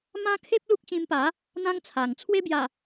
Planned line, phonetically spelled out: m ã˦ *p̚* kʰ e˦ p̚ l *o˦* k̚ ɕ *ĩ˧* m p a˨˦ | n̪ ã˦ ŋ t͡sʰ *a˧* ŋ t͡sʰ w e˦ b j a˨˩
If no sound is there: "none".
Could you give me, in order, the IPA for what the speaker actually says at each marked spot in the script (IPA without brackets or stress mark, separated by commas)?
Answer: none, u˦, ĩ˧, a˨˩